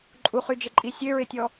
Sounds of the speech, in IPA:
ǃʼuχyd͡ʒɪǃʼi sʲøɹɪtʲɔ

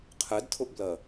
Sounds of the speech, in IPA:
qʰɛdtʰʊʔblɜ

